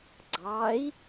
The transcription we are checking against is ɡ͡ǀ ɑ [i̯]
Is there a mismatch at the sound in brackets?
no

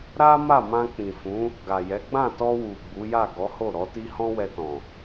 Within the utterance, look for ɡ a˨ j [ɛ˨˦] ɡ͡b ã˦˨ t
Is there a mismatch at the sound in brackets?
no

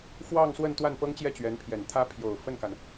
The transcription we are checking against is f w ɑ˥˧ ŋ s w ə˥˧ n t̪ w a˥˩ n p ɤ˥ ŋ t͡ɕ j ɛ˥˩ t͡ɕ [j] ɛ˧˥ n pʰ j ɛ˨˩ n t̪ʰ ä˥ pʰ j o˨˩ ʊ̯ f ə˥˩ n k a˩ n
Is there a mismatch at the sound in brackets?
yes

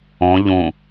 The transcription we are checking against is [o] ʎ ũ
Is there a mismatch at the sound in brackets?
yes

